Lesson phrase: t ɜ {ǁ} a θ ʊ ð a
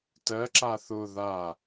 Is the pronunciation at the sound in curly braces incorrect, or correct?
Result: correct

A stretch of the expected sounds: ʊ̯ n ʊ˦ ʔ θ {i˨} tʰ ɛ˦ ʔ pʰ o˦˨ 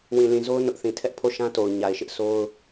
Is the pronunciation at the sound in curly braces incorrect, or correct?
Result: incorrect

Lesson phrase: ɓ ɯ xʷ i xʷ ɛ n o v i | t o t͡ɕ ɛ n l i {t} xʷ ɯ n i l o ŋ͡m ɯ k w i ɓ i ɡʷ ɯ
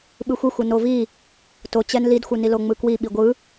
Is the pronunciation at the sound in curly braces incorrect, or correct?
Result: incorrect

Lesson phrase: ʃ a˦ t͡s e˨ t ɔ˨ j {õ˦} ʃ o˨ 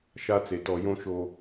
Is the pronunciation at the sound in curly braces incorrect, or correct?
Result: correct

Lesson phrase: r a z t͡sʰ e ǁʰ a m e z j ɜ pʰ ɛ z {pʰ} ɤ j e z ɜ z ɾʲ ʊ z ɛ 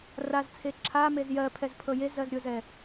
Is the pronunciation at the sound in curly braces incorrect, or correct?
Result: correct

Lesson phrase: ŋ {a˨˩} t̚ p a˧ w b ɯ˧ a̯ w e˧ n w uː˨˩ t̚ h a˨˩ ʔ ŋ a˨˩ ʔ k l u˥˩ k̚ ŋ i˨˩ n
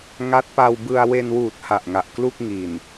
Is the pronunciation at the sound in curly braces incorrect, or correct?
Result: incorrect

